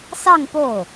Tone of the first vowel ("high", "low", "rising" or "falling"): falling